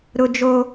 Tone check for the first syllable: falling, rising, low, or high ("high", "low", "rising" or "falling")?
high